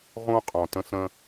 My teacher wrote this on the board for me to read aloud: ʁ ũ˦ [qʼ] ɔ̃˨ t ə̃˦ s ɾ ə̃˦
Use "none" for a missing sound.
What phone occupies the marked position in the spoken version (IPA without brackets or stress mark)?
qʼ